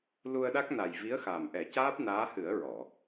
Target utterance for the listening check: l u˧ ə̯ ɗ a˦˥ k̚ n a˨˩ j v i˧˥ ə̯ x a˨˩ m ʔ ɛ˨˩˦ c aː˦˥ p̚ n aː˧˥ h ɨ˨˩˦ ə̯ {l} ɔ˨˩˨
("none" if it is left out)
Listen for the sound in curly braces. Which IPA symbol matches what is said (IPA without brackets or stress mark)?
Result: ɹ